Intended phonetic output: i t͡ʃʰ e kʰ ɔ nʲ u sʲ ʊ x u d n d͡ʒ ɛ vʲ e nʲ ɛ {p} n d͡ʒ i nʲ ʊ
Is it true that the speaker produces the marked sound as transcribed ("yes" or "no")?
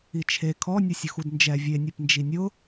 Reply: yes